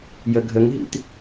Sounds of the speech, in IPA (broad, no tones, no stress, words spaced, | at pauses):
jəɡʱəŋɦḭt